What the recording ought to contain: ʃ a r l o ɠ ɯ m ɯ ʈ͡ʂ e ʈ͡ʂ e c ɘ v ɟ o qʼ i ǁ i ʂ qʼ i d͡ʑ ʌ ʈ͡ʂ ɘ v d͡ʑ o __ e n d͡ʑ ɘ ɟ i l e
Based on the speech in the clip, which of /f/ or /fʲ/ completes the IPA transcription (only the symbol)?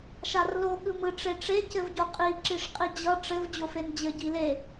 f